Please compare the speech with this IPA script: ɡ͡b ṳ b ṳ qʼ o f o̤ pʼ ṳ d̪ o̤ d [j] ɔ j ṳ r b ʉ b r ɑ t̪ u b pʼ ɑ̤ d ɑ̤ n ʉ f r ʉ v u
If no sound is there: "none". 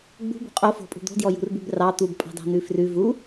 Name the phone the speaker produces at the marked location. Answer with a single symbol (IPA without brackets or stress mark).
j